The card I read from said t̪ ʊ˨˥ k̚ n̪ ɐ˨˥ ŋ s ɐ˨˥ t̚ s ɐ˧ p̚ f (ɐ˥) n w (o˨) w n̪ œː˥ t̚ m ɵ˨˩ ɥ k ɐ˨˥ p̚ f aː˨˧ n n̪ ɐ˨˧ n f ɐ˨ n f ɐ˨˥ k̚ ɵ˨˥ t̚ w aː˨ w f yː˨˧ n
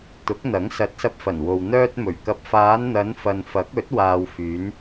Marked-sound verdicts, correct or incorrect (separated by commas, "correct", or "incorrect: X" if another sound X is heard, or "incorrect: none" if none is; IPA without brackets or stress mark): incorrect: ɐ˨˩, correct